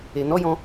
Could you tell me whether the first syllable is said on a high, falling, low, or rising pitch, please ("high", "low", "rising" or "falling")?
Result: low